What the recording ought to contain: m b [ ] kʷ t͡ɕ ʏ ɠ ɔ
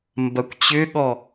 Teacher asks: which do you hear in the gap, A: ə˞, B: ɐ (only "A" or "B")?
B